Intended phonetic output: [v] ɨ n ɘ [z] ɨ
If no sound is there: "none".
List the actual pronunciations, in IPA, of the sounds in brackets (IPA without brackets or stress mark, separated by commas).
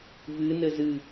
v, z